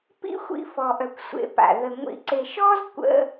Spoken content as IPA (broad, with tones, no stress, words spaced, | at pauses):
pḭ˥xʷḭ˦fɔ˨ ʔœ˨kʷsʷḛ˨pa̰˩ ðə˨ ŋʷḭ˨ǀe˨ʃɔ˦z kʷə̰˦